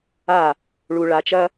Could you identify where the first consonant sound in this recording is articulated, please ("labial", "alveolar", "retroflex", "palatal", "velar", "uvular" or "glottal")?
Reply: retroflex